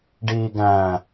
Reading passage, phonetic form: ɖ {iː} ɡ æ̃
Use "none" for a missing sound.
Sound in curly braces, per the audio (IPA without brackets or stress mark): iː